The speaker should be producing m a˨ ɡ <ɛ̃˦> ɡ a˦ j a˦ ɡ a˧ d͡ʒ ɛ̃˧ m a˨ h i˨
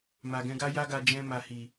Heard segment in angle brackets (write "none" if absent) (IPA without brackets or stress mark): ɛ̃˧